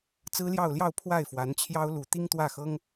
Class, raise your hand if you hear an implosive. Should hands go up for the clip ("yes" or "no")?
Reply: no